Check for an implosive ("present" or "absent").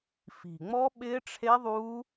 present